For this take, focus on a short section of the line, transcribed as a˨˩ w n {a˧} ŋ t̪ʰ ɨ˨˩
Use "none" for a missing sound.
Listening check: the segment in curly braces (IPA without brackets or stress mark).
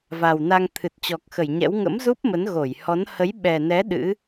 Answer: a˧